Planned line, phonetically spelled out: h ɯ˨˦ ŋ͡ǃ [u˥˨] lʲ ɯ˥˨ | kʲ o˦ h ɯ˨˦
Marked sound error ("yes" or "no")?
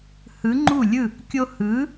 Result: no